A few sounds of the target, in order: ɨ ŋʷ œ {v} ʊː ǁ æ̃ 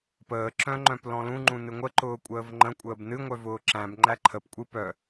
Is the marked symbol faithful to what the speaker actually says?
yes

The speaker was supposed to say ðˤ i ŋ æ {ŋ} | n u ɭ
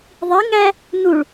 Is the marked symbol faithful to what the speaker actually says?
no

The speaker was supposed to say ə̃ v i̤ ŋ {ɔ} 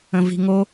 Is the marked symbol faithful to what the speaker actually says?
no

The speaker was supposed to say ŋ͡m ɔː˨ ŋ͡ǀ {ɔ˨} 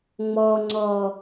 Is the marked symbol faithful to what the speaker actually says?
yes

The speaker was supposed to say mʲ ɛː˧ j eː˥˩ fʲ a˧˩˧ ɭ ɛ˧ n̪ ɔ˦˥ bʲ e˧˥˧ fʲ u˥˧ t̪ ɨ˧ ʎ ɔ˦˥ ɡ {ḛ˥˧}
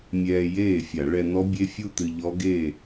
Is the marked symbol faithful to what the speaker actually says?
no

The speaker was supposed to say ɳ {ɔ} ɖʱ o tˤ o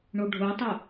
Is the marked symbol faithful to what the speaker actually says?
no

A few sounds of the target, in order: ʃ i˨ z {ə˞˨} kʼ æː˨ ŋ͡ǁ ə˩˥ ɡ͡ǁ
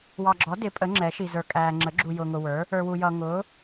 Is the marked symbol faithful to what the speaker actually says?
yes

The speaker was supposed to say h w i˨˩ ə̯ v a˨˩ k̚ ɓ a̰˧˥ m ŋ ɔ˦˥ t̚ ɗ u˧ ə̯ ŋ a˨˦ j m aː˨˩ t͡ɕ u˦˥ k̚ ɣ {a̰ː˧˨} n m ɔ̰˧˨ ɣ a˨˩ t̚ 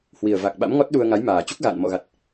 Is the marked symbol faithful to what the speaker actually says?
yes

